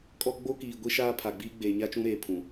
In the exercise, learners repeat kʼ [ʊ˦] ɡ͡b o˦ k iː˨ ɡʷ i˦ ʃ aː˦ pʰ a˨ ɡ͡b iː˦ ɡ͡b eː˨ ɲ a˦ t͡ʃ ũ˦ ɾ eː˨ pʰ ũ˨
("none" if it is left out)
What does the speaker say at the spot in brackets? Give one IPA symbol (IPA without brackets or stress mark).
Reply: ɔ˦